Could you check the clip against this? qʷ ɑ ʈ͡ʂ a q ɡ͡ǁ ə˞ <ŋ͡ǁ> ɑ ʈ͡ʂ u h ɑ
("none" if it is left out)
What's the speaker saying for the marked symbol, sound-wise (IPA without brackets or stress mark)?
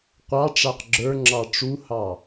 ŋ͡ǁ